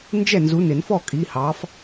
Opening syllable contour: falling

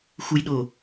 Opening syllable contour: low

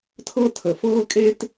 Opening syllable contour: high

